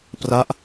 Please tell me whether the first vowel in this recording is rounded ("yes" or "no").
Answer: no